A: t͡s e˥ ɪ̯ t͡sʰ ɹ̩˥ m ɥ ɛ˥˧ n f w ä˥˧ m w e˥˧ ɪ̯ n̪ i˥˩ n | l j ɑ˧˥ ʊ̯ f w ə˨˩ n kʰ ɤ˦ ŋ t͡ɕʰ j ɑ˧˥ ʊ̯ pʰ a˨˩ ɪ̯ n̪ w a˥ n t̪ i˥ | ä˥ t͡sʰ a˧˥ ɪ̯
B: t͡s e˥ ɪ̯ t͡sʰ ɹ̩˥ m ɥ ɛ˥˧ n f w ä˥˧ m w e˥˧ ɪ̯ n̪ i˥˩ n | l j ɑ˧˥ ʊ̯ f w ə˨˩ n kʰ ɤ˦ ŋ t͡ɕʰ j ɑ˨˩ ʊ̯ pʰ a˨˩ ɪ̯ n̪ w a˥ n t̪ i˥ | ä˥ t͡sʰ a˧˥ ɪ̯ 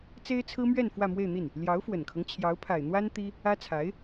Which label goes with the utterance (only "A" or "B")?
A